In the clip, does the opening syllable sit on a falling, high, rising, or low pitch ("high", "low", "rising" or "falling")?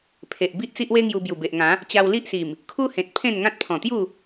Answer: low